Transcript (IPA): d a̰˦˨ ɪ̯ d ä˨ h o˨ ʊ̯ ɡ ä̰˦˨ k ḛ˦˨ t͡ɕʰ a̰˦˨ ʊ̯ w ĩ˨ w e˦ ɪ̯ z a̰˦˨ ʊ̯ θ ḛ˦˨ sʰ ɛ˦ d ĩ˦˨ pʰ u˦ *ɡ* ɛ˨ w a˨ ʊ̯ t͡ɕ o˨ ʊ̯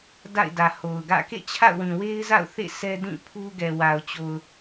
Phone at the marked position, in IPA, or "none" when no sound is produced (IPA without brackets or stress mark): ɡ